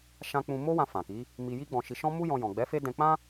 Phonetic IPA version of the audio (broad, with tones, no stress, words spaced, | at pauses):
ʃã˦ k͡pũ˧mo˦wã˧ fã˨ki˨˦ | mi˧ji˦ɡ͡bɔ̃˧ʃi˧ ʃɔ̃˦mu˦jɔ̃˧ jɔ̃˨ɡ͡bɛ˨˦fe˦dɛ̃˧ k͡pã˦